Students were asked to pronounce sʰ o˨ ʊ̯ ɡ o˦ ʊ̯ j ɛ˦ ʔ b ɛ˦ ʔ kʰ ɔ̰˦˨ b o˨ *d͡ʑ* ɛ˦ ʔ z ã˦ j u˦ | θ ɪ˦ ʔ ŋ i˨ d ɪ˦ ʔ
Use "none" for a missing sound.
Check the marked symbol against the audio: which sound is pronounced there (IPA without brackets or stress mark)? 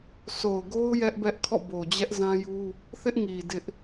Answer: d͡ʑ